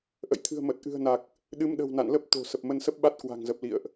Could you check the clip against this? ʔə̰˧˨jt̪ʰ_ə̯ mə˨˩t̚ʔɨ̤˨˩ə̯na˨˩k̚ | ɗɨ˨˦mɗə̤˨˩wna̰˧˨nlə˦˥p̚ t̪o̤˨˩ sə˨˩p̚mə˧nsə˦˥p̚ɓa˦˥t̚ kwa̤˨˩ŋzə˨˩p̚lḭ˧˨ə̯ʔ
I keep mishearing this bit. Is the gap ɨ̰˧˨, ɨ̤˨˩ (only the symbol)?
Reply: ɨ̤˨˩